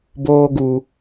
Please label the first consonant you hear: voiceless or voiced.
voiced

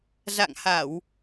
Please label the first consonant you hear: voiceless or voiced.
voiced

